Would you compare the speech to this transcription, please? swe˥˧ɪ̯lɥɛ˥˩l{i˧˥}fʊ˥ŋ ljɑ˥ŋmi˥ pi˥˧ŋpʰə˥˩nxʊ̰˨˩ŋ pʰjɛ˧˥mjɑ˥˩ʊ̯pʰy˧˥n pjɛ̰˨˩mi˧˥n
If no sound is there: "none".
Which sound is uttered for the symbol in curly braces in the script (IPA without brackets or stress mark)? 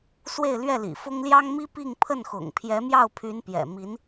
ḭ˨˩